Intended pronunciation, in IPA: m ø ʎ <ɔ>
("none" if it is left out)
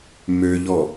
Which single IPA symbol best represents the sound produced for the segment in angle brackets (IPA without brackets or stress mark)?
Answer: ɔ